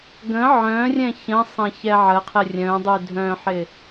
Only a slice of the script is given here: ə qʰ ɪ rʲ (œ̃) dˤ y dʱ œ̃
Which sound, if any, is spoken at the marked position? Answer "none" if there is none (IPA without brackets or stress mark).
œ̃